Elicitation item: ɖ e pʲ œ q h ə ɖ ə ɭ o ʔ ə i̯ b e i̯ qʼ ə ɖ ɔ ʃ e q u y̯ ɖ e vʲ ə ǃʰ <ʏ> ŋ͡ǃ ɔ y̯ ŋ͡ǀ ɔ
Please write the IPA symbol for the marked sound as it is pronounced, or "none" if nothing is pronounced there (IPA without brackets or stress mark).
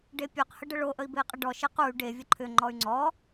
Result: ʏ